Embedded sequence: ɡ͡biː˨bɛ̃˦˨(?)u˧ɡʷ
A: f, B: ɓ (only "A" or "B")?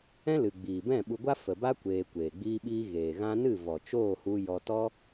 B